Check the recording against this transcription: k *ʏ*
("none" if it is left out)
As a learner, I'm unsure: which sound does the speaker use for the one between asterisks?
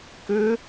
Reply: ʏ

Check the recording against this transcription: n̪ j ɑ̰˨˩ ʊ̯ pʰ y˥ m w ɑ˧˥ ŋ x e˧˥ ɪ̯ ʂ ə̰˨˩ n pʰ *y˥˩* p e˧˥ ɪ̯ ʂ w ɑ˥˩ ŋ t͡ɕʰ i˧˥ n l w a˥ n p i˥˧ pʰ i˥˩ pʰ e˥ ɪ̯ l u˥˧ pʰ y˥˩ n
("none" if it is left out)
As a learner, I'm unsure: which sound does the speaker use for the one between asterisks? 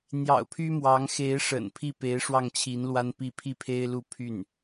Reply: i˥˩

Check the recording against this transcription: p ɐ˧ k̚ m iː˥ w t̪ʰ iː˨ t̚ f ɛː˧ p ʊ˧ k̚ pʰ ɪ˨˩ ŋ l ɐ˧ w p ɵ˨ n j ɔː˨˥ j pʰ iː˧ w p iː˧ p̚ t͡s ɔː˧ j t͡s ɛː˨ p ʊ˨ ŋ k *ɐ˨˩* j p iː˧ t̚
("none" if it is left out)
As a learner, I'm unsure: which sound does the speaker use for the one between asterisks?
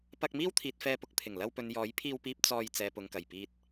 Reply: ɐ˨˩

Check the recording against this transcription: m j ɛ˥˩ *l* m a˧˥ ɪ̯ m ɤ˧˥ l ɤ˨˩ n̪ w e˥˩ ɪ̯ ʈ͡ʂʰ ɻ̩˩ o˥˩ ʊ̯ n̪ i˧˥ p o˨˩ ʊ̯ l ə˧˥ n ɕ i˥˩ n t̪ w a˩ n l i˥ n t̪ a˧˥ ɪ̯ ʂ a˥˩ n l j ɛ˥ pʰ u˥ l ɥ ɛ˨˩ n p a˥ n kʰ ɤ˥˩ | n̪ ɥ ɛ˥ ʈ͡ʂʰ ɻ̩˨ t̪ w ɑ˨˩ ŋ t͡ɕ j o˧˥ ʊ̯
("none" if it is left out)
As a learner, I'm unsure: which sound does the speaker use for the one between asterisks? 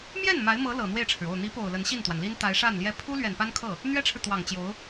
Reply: n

